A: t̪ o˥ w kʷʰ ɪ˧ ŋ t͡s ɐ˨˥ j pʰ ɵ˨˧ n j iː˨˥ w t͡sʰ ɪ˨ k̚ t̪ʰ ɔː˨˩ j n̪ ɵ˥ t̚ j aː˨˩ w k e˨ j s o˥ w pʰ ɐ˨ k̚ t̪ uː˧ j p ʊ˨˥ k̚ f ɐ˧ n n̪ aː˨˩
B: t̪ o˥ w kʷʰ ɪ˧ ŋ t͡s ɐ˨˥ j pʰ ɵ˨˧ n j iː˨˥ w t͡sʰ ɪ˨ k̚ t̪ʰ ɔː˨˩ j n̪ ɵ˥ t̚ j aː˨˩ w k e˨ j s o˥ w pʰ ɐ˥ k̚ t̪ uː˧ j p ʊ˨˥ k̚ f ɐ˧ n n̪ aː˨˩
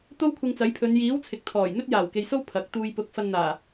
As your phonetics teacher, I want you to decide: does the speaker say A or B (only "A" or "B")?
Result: A